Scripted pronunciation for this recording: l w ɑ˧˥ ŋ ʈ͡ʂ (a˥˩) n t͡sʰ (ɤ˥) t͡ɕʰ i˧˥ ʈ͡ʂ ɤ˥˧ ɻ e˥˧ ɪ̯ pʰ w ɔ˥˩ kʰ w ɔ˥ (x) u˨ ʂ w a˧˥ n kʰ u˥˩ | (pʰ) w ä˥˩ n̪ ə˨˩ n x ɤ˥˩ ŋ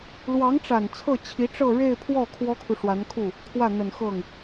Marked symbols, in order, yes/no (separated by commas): no, no, no, no